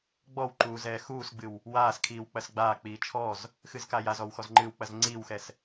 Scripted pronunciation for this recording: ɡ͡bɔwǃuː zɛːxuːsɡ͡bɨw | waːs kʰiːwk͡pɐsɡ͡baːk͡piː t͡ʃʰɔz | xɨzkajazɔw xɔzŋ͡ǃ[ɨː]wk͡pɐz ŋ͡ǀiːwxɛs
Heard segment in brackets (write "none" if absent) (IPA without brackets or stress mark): ɨː